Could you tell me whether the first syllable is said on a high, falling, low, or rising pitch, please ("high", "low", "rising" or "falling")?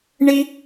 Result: high